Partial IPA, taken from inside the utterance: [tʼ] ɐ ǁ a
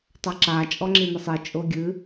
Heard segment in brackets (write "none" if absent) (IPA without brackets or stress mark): tˤ